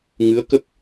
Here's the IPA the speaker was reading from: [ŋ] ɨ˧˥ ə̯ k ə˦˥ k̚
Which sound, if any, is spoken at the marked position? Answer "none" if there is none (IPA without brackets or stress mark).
ŋ